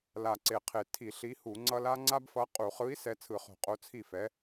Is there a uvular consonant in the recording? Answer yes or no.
yes